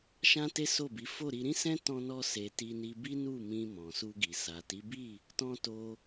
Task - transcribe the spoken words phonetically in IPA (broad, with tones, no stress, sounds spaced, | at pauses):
ʃ ã˦ t e˦ s o˦˨ b i˨˦ f o˦˨ ɾ i˧ ɾ ĩ˦ s ɛ̃˦ t ɔ̃˦ n ɔ˦ s e˧ t i˧ n i˧ b i˦ n u˦˨ m ĩ˧ m ɔ̃˨ s u˧ ɡ i˨ s a˨ t i˨˦ b i˦˨ | t ɔ̃˧ t o˧